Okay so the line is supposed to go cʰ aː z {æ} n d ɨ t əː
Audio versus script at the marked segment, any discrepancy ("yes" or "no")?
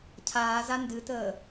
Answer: yes